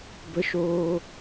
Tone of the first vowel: high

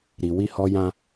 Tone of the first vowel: low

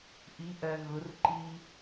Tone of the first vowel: rising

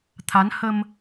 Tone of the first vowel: rising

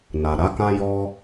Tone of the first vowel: low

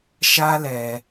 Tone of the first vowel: high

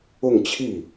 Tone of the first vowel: falling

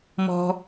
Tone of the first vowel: low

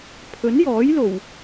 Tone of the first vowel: rising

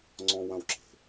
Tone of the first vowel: high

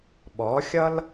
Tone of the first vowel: rising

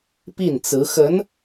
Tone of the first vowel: falling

